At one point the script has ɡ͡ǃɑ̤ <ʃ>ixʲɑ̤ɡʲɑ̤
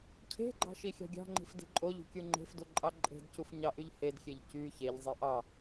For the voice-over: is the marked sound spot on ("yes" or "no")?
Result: yes